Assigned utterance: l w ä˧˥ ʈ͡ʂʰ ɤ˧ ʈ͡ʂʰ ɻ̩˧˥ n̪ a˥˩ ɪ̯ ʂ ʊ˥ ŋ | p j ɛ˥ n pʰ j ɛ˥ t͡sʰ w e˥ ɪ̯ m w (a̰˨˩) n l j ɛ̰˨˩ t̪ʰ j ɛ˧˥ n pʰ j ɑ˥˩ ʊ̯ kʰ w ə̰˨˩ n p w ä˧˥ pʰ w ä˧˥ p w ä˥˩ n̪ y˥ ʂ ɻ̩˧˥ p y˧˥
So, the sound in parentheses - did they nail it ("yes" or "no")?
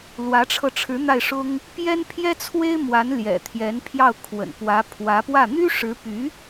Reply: no